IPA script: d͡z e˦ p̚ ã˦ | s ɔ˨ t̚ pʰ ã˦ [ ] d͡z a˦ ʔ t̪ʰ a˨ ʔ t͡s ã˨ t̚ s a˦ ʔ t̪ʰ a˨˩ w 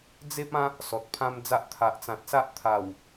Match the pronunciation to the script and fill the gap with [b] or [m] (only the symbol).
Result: m